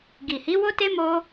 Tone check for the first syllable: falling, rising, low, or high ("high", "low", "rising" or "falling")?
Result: low